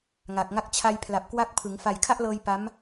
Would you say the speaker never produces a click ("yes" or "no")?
yes